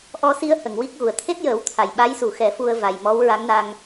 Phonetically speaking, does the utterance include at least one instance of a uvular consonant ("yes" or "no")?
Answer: no